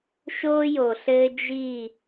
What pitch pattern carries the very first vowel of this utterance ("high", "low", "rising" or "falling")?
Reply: high